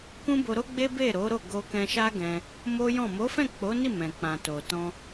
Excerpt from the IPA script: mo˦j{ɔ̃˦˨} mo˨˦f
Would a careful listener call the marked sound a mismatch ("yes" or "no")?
no